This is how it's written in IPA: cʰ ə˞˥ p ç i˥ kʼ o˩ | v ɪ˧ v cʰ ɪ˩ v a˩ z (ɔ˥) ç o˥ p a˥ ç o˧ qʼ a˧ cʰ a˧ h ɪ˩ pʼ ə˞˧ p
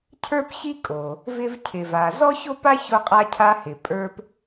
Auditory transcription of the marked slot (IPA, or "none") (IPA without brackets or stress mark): ɔ˥